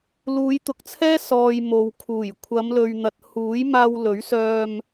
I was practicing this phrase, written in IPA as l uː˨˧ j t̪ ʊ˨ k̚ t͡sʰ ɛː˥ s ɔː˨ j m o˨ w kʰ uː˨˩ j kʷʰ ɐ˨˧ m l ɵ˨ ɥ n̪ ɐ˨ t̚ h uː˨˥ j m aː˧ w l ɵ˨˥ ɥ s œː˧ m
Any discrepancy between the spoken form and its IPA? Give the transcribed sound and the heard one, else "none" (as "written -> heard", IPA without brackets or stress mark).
none